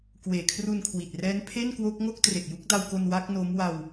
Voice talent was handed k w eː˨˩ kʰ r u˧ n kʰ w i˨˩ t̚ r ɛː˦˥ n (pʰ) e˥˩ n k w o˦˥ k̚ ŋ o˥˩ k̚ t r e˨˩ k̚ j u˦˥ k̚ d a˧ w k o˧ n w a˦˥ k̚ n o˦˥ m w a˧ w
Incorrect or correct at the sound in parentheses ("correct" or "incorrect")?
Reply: correct